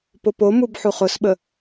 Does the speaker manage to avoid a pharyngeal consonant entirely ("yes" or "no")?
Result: no